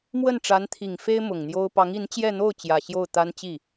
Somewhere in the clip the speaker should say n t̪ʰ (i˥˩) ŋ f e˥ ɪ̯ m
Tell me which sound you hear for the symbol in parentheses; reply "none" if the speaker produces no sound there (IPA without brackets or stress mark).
i˨˩